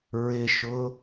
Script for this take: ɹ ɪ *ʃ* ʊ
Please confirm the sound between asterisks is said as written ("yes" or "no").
yes